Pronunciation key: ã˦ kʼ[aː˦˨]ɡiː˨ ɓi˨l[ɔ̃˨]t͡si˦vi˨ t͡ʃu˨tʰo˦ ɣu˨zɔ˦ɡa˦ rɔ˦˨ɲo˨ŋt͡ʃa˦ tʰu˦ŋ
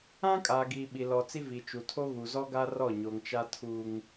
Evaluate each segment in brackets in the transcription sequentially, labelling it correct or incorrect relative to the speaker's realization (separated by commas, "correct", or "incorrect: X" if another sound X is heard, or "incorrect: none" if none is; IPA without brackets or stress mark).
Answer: incorrect: aː˨, incorrect: ɔ˨